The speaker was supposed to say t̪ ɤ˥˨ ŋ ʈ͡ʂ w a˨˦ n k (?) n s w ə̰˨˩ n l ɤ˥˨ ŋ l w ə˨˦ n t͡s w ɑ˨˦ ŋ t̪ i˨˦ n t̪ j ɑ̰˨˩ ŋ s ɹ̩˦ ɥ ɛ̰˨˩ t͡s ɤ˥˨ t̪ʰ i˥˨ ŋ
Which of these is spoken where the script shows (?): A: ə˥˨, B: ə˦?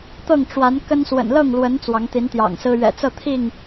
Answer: B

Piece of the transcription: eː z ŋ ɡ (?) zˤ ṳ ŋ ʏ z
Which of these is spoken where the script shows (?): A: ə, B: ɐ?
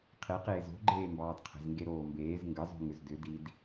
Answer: A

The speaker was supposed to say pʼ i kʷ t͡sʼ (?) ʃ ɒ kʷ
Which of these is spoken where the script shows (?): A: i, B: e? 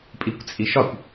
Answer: A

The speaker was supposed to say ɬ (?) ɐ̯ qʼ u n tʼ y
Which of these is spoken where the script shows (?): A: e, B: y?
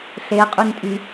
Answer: A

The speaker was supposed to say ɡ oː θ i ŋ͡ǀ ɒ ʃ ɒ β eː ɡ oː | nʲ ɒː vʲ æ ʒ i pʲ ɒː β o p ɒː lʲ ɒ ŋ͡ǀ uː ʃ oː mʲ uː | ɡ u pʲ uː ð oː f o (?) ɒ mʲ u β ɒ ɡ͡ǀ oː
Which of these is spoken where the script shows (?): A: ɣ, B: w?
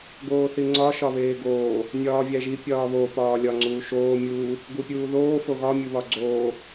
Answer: A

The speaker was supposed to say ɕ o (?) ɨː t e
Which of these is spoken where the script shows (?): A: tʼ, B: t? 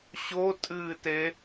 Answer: A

